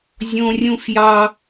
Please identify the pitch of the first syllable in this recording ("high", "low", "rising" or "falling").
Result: high